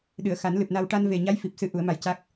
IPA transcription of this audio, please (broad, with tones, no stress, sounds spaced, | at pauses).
ɗ ɨ˨˩˨ ə̯ x a˨˩˦ n l ɨ˨˩ p̚ n a˧ w ʈ a˧ n v e˨˩ ɲ a˧˥ j f i˨˩ p̚ s ɨ˧˥ ʔ u˨˩˦ ə̯ m a˧ j c a˦˥ k̚